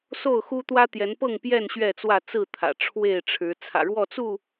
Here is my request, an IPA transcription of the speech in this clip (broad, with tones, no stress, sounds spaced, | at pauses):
s o˥˨ ʊ̯ x u˦ t̪ w ä˦ t̪ j ɛ˨˦ n p ɤ˥˨ ŋ p j ɛ˥˨ n ɕ ɥ ɛ˥˨ t͡s w ä˥˨ t͡s ɹ̩˥˨ t̪ʰ ä̰˨˩ ʈ͡ʂʰ w e˥˨ ɪ̯ ʈ͡ʂʰ ɻ̩˨˦ t͡sʰ ä̰˨˩ ɻ w ɔ˥˨ t͡s u˥˨